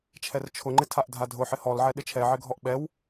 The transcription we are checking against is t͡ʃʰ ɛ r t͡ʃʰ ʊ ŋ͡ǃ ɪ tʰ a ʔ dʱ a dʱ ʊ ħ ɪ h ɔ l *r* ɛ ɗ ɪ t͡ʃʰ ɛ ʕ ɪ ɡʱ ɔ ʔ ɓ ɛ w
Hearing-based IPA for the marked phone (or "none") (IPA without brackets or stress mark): ʕ